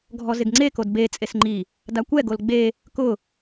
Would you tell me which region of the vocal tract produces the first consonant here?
velum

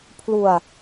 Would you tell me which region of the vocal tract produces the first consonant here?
lips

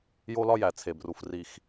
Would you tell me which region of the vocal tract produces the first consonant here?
palate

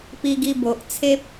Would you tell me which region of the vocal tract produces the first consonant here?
lips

